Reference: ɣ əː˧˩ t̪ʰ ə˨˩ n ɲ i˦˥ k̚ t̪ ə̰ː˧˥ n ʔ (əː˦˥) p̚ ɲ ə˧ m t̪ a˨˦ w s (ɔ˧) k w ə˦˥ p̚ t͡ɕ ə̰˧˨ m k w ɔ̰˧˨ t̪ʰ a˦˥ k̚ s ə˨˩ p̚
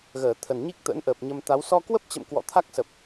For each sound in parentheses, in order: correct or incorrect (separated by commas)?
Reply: incorrect, correct